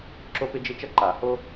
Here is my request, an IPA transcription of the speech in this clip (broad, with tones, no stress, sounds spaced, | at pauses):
ǁ o˦ p ɪ˦ d͡ʒ ɪ˦ t͡ʃ ɐ˦ ǃ a˨˩˦ h o˦